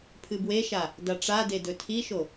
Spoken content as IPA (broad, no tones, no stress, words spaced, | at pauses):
pʰɨbweʃa | daʈ͡ʂade dɵtʰiʃo